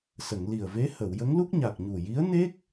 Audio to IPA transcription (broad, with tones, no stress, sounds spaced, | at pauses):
s ə˨˩˨ ŋ l i˨˩ ə̯ v e˧˥ h ə˨˩˨ w j ə˧˥ ŋ l u˦˥ k̚ ɲ a˨˩ k̚ ɲ u˨˩ j i˧˥ ə̯ n e˦˥ k̚